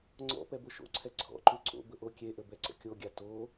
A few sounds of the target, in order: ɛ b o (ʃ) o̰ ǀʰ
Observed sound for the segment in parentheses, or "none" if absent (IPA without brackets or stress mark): ʃ